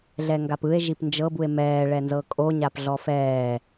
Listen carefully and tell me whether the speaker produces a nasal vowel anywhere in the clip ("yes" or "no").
no